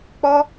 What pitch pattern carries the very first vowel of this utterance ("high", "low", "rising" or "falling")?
high